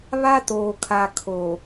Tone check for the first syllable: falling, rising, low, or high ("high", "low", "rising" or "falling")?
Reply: high